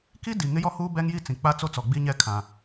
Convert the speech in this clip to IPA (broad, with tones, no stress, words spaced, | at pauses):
ki˦ di˨ ŋɪ˦jɔ˦huː˦ bɛ˦ŋji˦t͡sĩ˨ k͡pa˦t͡so˦t͡sɔ˨ ɡ͡bi˦ɲɛ˦ kʰã˨